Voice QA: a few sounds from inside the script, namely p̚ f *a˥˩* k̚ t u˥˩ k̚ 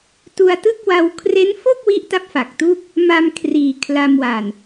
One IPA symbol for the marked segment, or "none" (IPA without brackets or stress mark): a˨˩